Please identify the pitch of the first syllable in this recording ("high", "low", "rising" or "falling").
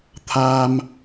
low